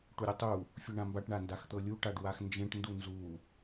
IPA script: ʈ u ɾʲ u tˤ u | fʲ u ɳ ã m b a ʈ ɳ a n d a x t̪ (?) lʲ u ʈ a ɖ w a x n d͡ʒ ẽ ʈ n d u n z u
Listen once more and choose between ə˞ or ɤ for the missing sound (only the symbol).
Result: ɤ